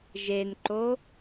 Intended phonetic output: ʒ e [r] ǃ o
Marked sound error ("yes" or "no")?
yes